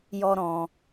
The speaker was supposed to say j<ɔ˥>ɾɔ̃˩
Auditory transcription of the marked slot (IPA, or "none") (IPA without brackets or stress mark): ɔ˧